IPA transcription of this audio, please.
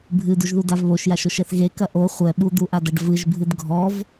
bʱɨduʒðudav βoʃjaʃoʃɛθ ɣekɐ ʔo χʷɛ ɓud̪uʔadɐɖ vɨʒbʱɨd ɡʱɔv

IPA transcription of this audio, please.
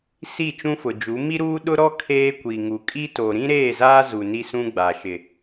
si˦˨t͡ʃũ˦fʊ˨d͡ʒu˨˦ mi˦ɾuː˦ ɗʊ˦ɾɔ˦ kʰeː˦kʷi˨ ŋu˨ kʼi˦to˨ ɾĩ˦ɾeː˦˨zaː˦ zu˨ni˦sũ˦ ɡ͡ba˨ ʃɪ˨

